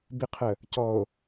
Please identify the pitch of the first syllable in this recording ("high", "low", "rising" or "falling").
rising